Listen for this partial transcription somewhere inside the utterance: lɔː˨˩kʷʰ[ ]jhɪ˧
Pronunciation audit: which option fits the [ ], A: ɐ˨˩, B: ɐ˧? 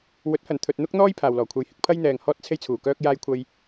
B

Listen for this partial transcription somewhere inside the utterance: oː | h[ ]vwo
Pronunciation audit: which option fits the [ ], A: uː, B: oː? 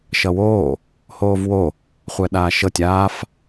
B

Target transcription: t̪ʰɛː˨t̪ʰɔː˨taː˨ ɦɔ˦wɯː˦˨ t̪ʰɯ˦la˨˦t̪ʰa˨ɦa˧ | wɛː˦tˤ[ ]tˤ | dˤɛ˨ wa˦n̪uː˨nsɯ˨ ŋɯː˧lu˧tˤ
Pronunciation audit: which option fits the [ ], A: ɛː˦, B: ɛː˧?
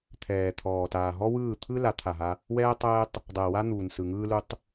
A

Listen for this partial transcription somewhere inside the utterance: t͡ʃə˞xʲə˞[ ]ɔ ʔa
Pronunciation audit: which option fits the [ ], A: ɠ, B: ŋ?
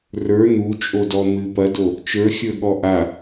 A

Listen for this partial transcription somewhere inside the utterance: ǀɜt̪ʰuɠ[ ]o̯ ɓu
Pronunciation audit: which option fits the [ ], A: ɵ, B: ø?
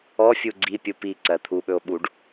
A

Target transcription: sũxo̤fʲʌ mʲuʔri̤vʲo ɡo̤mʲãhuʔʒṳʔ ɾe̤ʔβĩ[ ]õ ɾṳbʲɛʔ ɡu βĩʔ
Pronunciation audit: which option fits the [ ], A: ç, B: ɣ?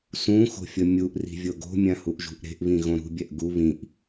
B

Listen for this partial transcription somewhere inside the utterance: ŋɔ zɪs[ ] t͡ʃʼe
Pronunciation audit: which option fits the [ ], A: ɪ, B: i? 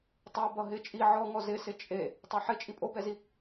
A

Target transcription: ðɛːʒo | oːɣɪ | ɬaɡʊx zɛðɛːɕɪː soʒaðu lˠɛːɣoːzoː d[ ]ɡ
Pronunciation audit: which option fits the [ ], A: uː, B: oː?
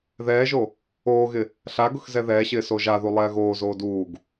A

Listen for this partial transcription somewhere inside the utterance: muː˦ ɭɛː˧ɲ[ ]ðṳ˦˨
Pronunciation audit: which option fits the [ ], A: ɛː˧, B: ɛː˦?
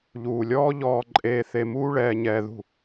A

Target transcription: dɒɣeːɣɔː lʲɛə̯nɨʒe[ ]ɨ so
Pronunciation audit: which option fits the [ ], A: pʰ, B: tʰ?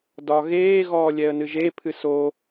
A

